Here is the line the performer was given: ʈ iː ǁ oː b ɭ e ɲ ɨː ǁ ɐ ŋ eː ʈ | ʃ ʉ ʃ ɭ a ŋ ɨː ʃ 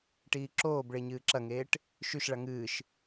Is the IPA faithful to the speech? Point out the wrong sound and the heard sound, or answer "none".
none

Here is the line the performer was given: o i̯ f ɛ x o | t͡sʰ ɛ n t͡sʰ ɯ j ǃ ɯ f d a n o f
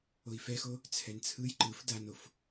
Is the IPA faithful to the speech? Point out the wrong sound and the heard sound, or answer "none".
none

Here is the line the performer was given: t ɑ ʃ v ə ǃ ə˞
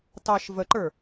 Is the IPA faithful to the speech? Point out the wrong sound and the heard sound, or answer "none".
none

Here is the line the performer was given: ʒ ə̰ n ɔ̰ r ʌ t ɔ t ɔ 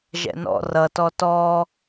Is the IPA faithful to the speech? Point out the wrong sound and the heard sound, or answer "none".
ə̰ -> ɛ̰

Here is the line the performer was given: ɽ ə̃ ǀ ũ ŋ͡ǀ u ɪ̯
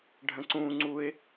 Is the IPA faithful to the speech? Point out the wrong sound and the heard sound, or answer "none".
ɽ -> ɖʱ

